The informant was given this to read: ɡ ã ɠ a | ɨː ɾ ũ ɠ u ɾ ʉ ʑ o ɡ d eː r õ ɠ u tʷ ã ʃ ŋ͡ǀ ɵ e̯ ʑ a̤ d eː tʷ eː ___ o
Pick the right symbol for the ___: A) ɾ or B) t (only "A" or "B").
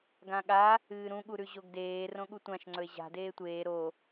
A